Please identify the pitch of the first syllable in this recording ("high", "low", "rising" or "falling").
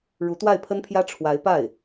rising